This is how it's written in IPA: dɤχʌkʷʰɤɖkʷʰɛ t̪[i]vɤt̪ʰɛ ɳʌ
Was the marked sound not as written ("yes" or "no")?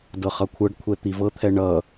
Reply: no